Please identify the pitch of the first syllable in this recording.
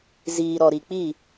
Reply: low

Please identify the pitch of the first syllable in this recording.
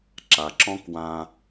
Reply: low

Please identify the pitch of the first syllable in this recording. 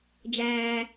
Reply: low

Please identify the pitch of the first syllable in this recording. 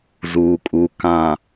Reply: low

